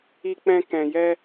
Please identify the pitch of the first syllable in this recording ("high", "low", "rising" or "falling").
low